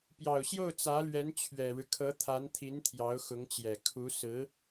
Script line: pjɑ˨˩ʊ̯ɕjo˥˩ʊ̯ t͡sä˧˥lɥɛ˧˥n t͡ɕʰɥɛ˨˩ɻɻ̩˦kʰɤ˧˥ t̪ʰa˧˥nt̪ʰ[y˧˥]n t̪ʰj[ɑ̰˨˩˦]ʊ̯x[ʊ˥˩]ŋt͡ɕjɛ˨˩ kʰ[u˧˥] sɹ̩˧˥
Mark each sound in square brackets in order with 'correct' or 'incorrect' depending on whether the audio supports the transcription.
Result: incorrect, incorrect, incorrect, correct

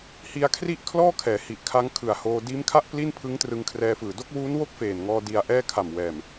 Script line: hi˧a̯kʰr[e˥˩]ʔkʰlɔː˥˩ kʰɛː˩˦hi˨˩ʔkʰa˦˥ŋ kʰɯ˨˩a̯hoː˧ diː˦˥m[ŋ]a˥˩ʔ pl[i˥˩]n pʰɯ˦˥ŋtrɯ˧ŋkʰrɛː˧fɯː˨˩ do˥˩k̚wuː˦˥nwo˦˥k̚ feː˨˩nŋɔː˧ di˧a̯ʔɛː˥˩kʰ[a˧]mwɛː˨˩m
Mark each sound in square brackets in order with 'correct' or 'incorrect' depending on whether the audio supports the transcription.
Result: incorrect, incorrect, correct, incorrect

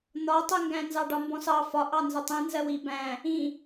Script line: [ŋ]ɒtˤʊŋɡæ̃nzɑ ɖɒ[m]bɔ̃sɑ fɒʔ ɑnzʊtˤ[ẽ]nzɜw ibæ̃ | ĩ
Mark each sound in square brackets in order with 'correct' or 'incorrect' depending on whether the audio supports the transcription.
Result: incorrect, correct, incorrect

